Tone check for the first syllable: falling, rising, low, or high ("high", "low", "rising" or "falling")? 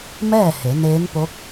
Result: falling